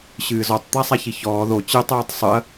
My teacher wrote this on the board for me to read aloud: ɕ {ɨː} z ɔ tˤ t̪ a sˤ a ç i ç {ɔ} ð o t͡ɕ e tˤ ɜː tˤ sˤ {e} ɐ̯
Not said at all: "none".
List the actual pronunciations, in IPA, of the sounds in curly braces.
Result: ɨː, ɔː, ɨ

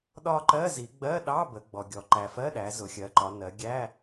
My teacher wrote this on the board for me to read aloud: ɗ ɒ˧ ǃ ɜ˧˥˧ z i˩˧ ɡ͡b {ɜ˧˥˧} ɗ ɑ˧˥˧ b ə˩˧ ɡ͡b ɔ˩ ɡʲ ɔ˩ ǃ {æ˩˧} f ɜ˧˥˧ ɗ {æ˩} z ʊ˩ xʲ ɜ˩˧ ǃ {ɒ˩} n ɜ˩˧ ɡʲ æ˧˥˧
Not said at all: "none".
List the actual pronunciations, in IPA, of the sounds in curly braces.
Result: ɜ˧˥˧, æ˩, æ˩˧, ɒ˩˧

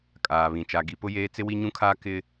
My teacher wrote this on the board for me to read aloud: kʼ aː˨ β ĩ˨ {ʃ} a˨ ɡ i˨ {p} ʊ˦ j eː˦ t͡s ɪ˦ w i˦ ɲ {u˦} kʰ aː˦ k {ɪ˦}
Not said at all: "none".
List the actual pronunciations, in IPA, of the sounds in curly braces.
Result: t͡ʃ, p, ũ˦, ɪ˦

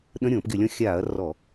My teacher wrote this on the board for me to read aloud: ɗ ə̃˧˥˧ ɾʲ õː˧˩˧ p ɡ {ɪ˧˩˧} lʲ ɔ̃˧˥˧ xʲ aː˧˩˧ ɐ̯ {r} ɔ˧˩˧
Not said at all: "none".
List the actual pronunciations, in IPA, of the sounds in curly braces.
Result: ɪ˧˩˧, r

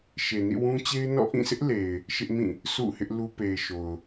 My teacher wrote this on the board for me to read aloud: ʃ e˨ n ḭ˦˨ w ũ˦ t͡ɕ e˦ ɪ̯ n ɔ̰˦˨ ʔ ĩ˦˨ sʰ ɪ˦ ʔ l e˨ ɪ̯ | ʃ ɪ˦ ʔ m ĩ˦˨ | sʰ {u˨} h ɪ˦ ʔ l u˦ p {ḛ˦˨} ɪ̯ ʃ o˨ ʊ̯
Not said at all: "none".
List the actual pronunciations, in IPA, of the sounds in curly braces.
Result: ṵ˦˨, e˨

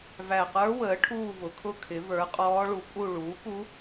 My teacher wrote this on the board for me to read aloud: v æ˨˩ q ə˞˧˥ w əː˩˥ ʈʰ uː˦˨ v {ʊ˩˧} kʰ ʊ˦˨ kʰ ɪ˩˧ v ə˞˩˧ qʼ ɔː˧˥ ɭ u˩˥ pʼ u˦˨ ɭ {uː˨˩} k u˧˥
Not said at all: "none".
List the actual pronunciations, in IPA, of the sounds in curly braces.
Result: ʊ˩˧, uː˩˥

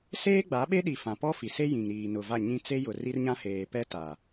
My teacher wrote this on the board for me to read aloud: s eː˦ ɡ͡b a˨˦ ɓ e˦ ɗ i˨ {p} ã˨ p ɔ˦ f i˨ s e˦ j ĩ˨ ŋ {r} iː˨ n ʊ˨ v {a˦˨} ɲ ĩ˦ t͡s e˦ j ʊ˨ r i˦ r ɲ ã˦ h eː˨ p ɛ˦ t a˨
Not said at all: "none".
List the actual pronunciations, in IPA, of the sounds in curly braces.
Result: f, ɾ, a˦˨

